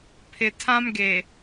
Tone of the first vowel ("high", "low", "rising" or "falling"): low